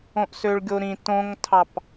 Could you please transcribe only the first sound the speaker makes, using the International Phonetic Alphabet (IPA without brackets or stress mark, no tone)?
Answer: õ